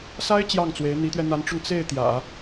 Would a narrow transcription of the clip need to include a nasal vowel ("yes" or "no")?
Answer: no